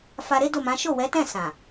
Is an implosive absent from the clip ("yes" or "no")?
yes